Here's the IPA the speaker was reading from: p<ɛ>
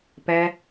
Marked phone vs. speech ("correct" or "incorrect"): correct